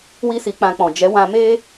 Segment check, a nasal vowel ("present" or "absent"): present